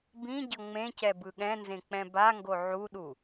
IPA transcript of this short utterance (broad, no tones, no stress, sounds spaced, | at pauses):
b ĩ ɟ ʌ ŋ͡m ẽ c ɛ b ɯ ɠ ɛ̃ n z ẽ k͡p ɛ̃ b a ŋ ɡ o ʕ u ɗ u